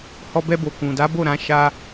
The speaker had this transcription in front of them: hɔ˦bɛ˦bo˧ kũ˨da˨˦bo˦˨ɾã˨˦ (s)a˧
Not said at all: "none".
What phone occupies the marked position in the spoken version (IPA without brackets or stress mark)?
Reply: ʃ